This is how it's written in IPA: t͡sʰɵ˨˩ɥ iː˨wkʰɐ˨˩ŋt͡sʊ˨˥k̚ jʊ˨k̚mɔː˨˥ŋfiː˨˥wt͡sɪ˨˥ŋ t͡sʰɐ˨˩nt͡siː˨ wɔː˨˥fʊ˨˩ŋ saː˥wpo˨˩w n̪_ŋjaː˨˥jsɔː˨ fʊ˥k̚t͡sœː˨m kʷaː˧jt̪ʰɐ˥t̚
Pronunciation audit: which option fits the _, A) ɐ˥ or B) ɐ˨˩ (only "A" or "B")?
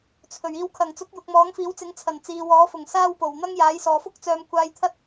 A